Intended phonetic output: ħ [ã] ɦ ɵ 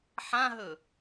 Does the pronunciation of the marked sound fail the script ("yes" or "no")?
no